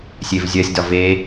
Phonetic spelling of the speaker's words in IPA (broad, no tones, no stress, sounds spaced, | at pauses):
sʲ e v zʲ ɜ sʲ d ɒ v e